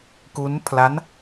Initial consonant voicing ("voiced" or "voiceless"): voiceless